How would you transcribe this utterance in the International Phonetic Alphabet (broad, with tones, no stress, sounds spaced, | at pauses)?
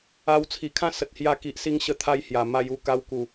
a˧ w t͡sʰ i˨˩ kʰ ã˥˧ s ə˨ t̚ h j a˧ k i˨ ʔ s i˧ ŋ ɕ ə˧ t̪ʰ a˧ j h j a˨˩ m a˧ j u˥˧ k a˧ w k u˨˩